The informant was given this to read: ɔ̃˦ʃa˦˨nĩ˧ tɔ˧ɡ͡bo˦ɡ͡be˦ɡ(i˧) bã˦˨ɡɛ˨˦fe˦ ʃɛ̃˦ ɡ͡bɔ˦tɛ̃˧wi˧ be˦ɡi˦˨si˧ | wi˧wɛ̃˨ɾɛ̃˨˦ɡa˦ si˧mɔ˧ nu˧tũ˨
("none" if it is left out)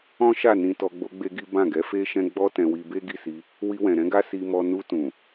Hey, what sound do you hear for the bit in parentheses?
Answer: i˦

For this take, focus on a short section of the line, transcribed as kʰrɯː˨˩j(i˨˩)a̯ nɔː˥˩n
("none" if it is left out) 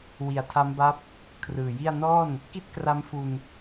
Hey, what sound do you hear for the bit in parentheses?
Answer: i˥˩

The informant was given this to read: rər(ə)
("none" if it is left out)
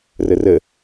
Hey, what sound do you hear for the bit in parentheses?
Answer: ə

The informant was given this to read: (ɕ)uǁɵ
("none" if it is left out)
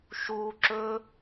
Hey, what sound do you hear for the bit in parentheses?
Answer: ʃ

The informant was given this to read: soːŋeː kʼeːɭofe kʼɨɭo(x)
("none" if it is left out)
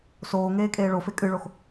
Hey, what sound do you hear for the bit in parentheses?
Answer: x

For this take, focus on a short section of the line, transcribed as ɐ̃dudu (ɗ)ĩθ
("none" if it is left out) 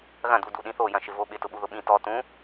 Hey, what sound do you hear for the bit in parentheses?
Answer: ɗ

